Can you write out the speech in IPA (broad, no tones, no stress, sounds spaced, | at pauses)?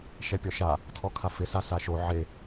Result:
ʃ ɛ pʲ ɔ ʃ a | tʰ ɔ kʰ a f ɪ s a s a ʃ o ʕ e